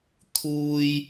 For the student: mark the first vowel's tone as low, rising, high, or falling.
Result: high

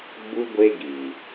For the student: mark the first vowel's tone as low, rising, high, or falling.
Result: high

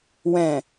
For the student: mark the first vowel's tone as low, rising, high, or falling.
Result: low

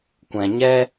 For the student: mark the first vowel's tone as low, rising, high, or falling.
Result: low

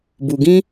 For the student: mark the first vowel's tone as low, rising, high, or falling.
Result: low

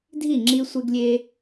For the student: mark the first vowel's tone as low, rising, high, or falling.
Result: falling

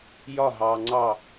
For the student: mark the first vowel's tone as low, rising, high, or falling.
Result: falling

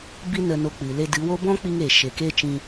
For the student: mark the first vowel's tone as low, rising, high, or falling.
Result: high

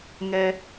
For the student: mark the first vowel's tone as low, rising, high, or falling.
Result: low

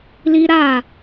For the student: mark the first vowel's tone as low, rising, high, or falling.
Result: high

